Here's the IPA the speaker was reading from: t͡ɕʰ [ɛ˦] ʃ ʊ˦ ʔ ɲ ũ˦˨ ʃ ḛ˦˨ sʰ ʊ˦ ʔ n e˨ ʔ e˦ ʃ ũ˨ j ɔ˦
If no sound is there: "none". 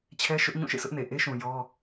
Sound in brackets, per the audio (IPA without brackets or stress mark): ɛ˦